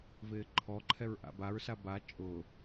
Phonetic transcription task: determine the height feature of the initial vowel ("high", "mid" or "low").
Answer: high